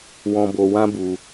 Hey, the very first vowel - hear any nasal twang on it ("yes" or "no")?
yes